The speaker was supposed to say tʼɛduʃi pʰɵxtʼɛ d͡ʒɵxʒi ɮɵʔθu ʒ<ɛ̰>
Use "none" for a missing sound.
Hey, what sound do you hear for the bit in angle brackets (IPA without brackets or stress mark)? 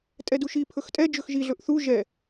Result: ɛ